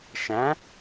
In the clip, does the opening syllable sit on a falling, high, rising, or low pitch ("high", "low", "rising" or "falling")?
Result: rising